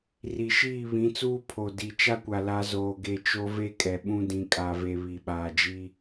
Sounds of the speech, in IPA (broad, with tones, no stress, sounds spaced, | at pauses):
r i˨ ʃ iː˦˨ β ĩ˨˦ t͡s uː˦ pʰ o˨ d i˨ t͡ʃ a˦ kʷ a˨ l a˦ z oː˨ ɡ e˨ t͡ʃ o˦ v e˦ kʼ ɛ˨ ɓ ũ˦ d ĩ˨ kʼ a˨ v e˨ β i˨ ɓ aː˨ d͡ʒ i˦